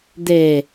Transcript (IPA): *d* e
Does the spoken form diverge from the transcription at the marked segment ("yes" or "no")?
no